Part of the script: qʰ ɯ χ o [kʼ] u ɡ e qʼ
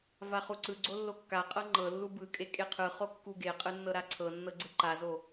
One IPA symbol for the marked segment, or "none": kː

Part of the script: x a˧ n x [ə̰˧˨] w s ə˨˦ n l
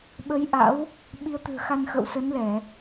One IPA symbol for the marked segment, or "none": ə̰˧˨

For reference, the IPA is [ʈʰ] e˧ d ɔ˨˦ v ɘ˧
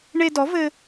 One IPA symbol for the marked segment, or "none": ɳ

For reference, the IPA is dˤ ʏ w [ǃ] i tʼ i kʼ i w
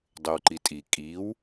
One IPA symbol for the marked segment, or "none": ǃ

